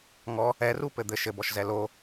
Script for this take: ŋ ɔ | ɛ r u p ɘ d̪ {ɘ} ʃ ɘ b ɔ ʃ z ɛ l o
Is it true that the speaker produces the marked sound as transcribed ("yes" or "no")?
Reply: yes